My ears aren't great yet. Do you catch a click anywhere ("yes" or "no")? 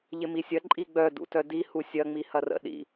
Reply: yes